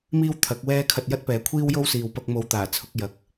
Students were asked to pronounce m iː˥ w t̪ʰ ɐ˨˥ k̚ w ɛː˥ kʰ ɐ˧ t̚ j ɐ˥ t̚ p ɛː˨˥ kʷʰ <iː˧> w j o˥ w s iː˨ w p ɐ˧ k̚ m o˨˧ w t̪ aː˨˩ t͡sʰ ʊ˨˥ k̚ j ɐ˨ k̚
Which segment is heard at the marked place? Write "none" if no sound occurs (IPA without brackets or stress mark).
iː˥